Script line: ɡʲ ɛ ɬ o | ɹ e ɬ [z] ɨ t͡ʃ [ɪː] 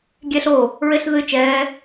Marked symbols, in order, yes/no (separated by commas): no, no